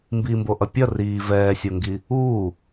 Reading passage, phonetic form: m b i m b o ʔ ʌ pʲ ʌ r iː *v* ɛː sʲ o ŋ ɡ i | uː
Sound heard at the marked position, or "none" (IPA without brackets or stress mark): v